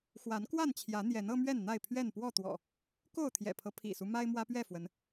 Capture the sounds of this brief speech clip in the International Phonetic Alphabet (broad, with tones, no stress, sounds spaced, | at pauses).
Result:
x w a˨˦ n k w a˥˨ n t͡ɕʰ j ä˨˦ n̪ j ɛ˨˦ n ɤ˦ m ɥ ɛ˥˨ n n̪ a˥˨ ɪ̯ pʰ ɥ ɛ˥˨ n p w ɔ˥˨ t̪ w ɔ̰˨˩ | k o˥˨ ʊ̯ t̪ʰ j ɛ̰˨˩ pʰ ɤ˦ pʰ ḭ˨˩ s u˦ m a˦ ɪ̯ m w ä˦ p ɥ ɛ˥˨ f w ə˨˦ n